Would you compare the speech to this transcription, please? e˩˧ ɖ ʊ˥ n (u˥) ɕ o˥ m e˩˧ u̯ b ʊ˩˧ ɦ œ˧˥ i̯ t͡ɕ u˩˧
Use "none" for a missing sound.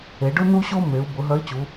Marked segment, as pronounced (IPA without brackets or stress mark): u˥